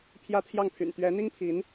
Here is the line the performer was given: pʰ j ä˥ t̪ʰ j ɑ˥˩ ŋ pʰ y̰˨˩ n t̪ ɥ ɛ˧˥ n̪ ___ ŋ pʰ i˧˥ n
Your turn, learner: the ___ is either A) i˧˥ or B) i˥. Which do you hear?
B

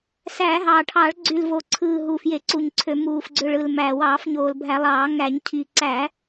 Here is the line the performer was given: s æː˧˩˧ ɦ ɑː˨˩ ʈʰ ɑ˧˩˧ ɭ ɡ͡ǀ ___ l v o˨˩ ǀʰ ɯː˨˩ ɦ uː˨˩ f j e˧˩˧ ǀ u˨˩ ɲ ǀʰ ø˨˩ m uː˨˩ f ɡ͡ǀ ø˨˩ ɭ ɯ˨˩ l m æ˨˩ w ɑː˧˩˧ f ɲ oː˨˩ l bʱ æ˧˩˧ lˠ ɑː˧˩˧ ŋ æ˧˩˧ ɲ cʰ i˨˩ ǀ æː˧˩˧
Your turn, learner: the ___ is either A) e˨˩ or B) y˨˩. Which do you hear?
B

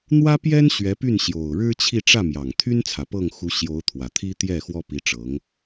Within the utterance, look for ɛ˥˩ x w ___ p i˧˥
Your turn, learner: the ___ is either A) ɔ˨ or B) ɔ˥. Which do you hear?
B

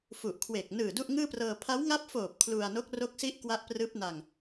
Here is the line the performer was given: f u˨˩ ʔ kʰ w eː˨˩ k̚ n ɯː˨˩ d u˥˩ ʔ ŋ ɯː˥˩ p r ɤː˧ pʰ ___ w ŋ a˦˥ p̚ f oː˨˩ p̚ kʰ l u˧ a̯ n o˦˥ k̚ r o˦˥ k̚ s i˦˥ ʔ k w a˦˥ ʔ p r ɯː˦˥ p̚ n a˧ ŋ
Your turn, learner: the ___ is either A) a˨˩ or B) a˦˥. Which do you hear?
B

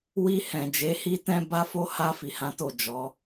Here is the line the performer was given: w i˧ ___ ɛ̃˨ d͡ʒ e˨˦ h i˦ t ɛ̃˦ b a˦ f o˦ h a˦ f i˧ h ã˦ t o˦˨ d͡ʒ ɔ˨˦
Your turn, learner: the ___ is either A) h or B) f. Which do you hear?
A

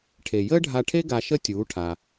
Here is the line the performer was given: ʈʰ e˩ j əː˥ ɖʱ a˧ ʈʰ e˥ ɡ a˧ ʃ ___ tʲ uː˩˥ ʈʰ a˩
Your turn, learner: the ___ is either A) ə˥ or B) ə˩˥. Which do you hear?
A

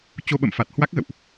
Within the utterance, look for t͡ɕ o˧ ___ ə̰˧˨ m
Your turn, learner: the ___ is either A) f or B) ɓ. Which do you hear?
B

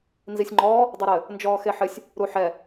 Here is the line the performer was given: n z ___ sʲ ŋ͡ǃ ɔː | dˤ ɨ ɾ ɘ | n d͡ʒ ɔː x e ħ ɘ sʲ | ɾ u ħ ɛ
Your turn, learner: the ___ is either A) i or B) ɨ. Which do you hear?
A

